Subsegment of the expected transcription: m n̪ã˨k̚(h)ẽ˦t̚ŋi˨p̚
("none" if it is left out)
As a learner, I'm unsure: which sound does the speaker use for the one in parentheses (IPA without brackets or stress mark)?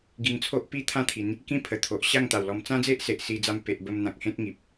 h